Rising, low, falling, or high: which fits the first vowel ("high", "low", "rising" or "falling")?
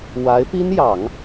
rising